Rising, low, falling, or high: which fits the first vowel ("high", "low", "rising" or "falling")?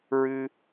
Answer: high